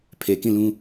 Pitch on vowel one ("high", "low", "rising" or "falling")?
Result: low